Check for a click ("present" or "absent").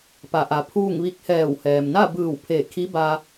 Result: absent